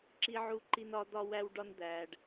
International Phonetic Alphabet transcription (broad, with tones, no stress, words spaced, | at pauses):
ǁi˧ʕu˧ǃi˧n ɒ˧d̪ɒ˧wæ˧wɖɒ˧n d̪æ˨ɖ